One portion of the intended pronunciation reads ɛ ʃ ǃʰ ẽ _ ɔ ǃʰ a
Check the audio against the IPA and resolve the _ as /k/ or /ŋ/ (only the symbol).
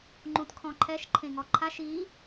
ŋ